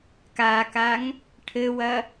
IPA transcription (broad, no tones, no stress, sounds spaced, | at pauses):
k a k a ŋ | ʈʰ ɘ w ɐ